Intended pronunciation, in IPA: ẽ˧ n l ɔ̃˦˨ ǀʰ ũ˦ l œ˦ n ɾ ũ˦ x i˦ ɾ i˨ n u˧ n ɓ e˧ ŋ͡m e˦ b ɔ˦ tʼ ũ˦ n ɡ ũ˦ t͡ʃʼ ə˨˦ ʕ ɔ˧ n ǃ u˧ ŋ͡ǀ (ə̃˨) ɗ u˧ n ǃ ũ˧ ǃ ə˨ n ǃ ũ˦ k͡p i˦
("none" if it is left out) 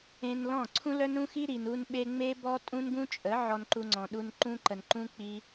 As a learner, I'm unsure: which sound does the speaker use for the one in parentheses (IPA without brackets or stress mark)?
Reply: ɔ̃˨